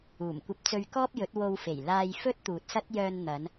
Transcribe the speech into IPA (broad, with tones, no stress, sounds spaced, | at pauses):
uː˨˩ m kʷ ɐ˧ p̚ t͡s ɵ˧ ɥ k ɔː˥ p̚ j ɵ˨˥ t̚ w o˧ w f e˨˩ j l aː˧ j f ɵ˥ t̚ t̪ uː˨ t̚ s ɐ˥ t̚ j œː˧ n n̪ ɐ˨˧ n